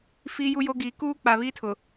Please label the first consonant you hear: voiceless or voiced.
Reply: voiceless